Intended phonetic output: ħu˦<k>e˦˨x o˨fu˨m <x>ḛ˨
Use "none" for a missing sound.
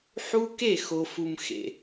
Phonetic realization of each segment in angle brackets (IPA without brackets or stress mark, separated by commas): k, x